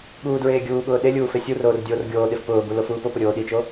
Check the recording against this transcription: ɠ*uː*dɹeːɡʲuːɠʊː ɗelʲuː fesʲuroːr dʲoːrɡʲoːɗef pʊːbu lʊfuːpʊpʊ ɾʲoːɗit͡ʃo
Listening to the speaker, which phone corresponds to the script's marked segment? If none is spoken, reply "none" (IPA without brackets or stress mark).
uː